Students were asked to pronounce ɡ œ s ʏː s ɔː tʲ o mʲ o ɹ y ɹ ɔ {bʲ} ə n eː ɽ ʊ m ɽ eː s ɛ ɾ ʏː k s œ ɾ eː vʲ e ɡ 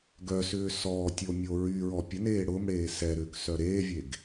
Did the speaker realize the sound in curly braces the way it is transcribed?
no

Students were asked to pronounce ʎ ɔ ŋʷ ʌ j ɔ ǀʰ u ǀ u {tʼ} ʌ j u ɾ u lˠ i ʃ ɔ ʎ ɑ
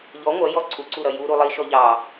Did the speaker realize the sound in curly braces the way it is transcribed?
no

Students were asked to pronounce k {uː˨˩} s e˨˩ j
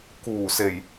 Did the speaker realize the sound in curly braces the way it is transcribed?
yes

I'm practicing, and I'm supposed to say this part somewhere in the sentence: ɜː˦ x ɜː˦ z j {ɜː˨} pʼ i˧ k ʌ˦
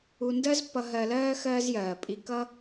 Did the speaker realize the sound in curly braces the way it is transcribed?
yes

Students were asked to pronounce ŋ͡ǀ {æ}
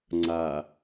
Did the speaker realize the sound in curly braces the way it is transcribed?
no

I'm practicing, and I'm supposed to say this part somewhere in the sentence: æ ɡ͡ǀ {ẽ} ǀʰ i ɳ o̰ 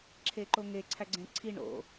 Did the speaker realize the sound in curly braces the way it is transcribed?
yes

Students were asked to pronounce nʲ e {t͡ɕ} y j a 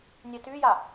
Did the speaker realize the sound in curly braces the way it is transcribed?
no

